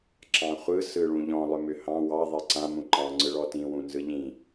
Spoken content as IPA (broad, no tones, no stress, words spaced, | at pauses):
ǁɑ̃χʷɯ sɯɭũʎɔ̃ lˠʏmʏhɑ̃ wɑ ðˤiǀã mũǃɑ̃ ŋ͡ǀɯɭɔtĩ wũnzɯʎĩ